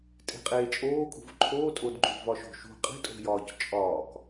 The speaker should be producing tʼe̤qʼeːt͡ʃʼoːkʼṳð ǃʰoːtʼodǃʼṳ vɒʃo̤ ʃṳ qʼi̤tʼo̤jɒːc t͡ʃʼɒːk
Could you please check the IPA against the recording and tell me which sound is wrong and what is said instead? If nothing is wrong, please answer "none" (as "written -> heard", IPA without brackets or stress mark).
ð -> v